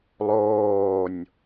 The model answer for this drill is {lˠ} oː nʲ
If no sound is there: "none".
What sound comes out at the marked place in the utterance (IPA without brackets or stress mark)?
lˠ